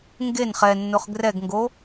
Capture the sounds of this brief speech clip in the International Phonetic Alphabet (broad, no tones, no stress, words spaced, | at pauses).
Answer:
ŋɡen χɛnːʊχ ɡrɛɡŋɡo